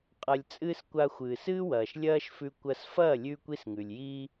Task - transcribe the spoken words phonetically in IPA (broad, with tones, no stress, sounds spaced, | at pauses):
qʼ ɐ˧ lʲ t͡sʼ ɨː˦ s kʷ a˧ xʷ ɨː˨ s ɨː˦ w ɐː˨ ʃ lʲ ɐː˦ ʃ f ʉ˧ kʷ ɐ˧ s f ɐː˦˨ lʲ ʉː˧ kʷ i˦ s ŋ ʉ˨ lʲ j iː˦